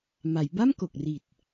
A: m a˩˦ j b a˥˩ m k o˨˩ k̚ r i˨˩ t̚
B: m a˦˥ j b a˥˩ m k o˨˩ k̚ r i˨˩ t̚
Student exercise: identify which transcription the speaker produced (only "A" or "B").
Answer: A